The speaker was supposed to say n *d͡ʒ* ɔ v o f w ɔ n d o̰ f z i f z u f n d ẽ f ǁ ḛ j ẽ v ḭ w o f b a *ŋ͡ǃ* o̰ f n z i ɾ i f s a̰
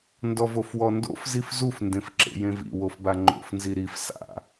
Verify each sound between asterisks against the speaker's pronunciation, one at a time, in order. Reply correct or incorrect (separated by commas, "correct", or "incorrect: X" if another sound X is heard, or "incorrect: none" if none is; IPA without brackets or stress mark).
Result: incorrect: d, correct